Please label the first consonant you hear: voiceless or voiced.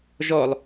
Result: voiced